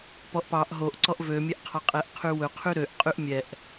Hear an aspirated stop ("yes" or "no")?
yes